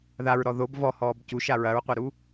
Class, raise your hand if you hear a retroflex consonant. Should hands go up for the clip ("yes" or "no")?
no